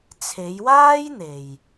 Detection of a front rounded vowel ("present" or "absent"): absent